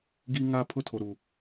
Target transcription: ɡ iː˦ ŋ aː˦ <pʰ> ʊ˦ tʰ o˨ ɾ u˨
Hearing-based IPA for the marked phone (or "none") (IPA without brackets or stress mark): pʰ